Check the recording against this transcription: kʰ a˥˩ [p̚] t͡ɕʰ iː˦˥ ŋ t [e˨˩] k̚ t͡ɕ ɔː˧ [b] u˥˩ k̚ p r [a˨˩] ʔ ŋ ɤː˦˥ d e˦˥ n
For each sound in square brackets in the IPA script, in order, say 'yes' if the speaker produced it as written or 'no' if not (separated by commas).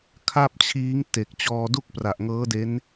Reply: yes, yes, no, yes